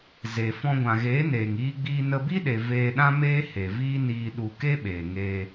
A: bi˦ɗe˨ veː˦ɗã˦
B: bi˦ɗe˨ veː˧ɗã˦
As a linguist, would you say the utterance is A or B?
B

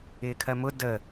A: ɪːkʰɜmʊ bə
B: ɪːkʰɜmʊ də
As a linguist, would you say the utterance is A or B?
B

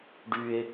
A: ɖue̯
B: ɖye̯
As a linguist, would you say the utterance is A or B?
B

